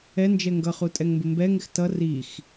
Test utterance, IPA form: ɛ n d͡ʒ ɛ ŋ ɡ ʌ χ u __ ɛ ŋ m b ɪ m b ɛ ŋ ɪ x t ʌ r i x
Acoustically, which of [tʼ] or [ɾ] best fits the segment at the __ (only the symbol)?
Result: tʼ